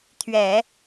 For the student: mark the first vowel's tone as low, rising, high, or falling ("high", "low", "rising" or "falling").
low